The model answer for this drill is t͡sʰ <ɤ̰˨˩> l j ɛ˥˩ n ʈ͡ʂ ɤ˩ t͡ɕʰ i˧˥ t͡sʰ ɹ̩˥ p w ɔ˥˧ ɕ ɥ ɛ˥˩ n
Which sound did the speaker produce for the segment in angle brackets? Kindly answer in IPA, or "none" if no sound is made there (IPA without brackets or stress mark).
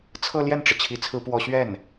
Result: ɤ˥˧